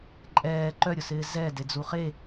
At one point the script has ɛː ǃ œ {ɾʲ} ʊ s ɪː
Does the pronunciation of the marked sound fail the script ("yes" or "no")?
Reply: no